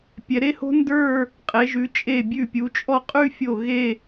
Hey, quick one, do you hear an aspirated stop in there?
no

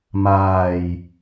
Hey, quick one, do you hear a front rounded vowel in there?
no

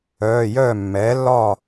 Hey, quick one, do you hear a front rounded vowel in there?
yes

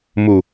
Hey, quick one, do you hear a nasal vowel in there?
no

